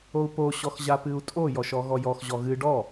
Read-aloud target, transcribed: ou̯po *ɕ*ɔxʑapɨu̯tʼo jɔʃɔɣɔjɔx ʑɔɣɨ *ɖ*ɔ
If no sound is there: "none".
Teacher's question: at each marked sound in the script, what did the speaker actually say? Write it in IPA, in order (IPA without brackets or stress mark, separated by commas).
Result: ɕ, ɖ